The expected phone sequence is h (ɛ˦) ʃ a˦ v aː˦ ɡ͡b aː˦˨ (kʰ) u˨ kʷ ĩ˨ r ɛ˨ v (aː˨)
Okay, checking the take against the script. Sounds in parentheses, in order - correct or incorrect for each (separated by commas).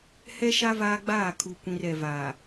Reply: correct, correct, correct